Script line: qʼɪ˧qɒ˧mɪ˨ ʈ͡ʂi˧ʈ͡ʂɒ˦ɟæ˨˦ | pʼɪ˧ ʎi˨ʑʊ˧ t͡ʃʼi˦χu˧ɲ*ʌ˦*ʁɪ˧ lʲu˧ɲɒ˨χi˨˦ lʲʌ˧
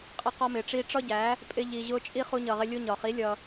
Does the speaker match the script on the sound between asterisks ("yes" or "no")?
no